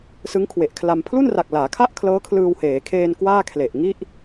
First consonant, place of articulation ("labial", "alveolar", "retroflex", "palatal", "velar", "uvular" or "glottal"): alveolar